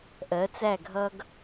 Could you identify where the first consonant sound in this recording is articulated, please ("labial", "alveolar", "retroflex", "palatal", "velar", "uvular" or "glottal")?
glottal